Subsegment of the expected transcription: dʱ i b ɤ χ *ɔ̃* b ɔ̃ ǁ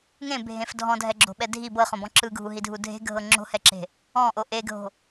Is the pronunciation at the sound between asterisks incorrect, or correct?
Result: incorrect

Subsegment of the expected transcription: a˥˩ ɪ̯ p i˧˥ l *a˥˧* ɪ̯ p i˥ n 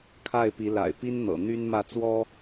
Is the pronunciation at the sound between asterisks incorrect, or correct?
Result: incorrect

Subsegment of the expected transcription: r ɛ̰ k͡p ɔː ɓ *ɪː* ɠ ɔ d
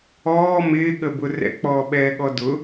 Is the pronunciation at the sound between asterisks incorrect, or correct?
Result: incorrect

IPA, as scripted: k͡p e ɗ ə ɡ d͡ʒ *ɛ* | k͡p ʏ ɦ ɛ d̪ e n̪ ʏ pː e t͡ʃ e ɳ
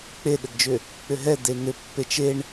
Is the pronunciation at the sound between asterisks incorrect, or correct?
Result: incorrect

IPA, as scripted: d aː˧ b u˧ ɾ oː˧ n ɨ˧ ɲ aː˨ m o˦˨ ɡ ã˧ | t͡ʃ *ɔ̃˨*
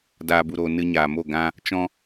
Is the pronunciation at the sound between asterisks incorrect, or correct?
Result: incorrect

